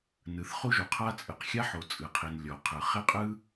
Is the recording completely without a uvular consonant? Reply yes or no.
no